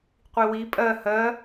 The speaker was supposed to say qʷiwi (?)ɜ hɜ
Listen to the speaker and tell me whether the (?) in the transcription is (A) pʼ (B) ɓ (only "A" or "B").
A